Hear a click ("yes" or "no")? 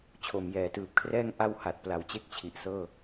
no